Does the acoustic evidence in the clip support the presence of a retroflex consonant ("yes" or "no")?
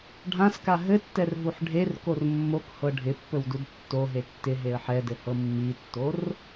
yes